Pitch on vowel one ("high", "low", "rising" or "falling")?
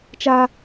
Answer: high